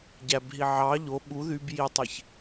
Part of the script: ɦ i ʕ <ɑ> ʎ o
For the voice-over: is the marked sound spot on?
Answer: yes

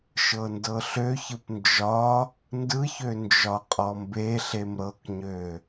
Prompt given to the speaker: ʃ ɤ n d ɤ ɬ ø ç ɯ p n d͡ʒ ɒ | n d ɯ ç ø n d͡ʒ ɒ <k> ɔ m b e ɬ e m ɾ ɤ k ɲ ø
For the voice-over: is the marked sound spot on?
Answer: no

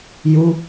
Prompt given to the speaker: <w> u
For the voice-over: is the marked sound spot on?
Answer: no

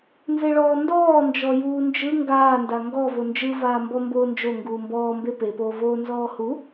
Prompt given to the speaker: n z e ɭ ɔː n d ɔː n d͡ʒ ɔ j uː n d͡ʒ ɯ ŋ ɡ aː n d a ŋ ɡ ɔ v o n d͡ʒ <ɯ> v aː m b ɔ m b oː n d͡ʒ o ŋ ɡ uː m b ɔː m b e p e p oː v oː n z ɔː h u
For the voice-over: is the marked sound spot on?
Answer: yes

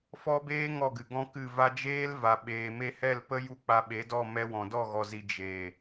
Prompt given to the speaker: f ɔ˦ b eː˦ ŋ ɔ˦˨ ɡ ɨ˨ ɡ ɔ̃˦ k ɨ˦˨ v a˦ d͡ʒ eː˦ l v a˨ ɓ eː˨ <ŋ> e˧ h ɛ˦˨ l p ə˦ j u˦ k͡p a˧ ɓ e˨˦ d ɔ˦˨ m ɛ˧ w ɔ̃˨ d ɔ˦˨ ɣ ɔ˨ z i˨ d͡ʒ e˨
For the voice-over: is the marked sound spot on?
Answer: no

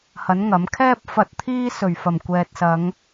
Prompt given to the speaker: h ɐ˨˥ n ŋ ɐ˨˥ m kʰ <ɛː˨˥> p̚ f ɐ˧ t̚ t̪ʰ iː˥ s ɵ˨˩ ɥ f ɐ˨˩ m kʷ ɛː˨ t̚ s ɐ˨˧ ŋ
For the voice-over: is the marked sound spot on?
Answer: no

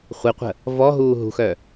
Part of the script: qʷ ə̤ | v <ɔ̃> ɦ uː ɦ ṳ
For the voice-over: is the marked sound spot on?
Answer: no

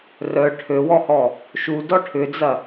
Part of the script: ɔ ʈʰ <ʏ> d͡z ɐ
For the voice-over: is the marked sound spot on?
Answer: yes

